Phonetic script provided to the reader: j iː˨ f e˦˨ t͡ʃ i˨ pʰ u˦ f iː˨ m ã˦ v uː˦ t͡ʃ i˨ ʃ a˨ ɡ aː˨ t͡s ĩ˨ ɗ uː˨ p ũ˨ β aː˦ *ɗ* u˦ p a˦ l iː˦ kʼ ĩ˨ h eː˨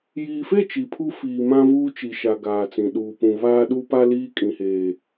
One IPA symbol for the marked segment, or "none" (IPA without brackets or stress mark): ɗ